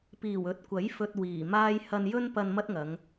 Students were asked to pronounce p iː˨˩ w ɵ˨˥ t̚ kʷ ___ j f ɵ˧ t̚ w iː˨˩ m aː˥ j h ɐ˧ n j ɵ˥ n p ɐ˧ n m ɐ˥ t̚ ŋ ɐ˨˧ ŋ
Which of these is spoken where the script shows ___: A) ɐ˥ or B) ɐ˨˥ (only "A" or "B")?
B